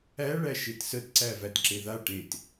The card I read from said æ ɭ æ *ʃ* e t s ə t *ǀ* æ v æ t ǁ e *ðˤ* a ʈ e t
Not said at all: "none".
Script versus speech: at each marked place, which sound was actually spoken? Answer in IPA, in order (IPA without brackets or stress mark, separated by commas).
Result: ʃ, ǀ, ð